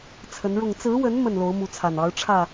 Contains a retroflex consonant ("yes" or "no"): yes